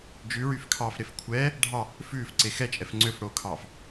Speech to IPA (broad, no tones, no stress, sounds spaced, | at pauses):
d͡ʒ ʉ ɹ y f kʰ ɑː f ɾ e f kʷʰ ɛː | ɖʱ ɑ | f ʉː f ǀ e x ɛ t͡ʃʼ ɛ f ŋ͡ǀ ø f ɽ oː kʰ ɑː f